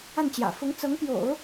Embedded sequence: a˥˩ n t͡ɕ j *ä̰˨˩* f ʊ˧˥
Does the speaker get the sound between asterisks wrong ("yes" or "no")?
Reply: no